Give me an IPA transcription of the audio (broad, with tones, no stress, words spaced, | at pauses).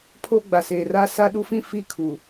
pʰo˦ ɡ͡ba˨seː˨ra˦ sa˦ɗu˦fĩ˦ fi˦˨kʰu˨